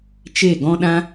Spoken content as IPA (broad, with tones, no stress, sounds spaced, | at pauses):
t͡ʃ e˦˨ ɡ ɔ̃˦ ɗ ã˦